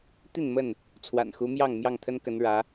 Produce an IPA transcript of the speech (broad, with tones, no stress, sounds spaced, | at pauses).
t̪ i˥˨ n m ə˥˨ n | t͡sʰ w a̰˨˩ n x u˨˦ m j ɑ˥˨ ŋ m j ɑ˥˨ ŋ t̪ʰ ə˦ n k ə˨˦ n ɻ ä˨˦